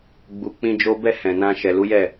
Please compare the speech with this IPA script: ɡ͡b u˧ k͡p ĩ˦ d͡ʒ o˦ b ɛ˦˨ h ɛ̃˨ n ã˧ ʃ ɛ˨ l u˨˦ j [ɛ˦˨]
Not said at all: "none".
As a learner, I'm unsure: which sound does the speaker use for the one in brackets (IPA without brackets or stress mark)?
ɛ˦˨